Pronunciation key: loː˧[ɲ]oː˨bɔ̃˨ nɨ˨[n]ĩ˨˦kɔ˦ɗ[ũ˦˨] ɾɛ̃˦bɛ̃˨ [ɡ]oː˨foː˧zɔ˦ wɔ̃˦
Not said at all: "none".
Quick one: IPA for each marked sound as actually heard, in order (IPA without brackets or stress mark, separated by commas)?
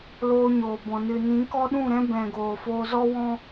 ɲ, n, ũ˦˨, ɡ